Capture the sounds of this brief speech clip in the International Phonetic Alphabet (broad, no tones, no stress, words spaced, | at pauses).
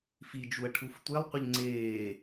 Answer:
fid͡ʒuɐ̯ ʈʰuftʷelˠqʷɪʎ ŋ͡ǀeː